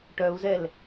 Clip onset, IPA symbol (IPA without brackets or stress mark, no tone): ʈ